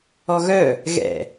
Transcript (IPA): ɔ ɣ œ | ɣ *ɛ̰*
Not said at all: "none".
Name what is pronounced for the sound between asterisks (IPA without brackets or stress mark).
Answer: ɛ̰